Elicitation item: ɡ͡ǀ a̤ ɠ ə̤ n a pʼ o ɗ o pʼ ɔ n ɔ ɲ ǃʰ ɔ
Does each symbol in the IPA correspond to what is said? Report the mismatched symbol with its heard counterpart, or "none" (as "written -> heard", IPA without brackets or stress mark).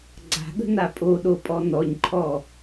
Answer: none